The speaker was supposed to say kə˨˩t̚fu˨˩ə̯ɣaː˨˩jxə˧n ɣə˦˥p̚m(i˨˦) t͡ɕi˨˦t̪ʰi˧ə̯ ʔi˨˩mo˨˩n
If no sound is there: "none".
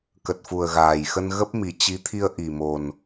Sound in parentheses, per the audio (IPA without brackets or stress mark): i˨˩